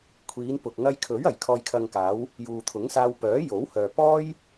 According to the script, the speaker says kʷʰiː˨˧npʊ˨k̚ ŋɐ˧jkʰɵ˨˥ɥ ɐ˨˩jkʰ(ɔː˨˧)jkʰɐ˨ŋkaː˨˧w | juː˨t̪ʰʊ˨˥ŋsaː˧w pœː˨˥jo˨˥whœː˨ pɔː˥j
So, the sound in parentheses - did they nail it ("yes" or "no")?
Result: no